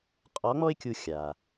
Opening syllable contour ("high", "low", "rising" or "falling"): rising